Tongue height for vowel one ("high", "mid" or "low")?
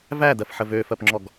low